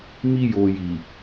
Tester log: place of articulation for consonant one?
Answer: labial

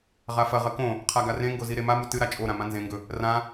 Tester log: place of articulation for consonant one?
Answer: uvular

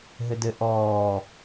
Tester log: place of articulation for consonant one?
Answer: glottal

